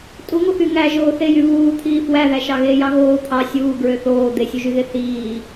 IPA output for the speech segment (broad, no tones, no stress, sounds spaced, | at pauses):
tʼ u ŋ o x y ŋ æ ʒ oː θ e j y β uː t̪ʰ iː f w æ ð æ ʃ ɑ ɣ eː j ɑ ɣ oː t̪ʰ ɑ sʲ uː ɡ ɹ ø θ oː d̪ e sʲ u ʒ y ɣ e θ iː